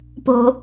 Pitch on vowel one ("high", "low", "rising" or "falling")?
low